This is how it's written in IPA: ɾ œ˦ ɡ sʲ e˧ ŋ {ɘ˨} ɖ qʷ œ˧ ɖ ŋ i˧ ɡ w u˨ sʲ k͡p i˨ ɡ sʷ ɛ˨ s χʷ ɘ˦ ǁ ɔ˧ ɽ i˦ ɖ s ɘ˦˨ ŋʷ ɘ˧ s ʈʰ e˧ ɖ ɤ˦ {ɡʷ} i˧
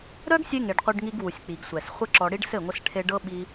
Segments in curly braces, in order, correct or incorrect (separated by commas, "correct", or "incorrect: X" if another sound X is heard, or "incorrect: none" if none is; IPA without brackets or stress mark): incorrect: e˨, incorrect: ɓ